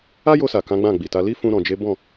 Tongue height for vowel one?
low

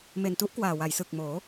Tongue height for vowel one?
mid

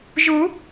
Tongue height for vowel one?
high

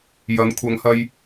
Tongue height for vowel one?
low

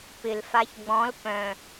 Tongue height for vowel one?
high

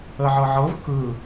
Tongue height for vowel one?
mid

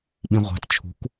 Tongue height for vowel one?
high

